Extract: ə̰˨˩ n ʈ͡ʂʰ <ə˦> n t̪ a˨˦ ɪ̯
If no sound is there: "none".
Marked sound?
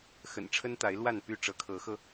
ə˦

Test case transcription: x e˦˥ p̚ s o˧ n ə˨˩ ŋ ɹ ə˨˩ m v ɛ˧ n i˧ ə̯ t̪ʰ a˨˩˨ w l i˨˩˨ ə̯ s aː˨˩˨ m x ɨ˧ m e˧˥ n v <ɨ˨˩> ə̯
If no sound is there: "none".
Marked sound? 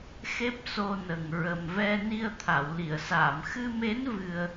ɨ˧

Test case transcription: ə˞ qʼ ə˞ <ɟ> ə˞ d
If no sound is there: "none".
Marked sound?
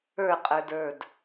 d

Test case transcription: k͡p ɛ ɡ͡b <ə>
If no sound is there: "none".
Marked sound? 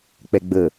ə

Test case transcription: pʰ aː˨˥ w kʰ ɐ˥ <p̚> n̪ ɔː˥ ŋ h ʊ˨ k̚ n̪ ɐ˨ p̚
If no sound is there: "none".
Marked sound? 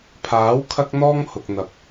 k̚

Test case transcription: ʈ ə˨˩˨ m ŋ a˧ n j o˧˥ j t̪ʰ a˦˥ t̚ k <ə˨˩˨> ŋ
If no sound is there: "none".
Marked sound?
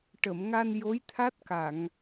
a˨˩˨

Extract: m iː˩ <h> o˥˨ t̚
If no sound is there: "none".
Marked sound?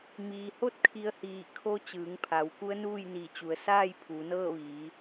h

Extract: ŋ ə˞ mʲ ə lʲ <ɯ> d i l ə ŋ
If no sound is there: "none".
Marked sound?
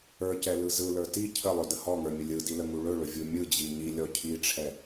ɯ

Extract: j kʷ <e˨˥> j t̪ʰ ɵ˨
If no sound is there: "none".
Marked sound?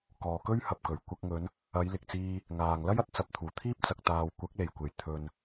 e˨˩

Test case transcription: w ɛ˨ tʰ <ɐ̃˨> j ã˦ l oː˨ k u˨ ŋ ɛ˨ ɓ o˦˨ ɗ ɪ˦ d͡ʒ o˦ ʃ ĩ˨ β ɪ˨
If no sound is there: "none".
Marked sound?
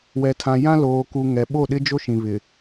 ã˨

